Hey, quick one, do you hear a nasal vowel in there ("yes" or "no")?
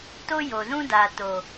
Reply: yes